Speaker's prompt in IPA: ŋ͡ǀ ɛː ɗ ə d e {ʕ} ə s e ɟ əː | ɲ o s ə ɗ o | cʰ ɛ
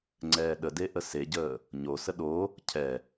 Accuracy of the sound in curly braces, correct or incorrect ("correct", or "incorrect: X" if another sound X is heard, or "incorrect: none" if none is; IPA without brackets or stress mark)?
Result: incorrect: ʔ